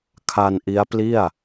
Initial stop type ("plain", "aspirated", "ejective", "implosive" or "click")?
aspirated